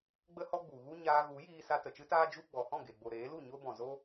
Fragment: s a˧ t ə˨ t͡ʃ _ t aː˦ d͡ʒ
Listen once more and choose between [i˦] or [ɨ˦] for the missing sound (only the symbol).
ɨ˦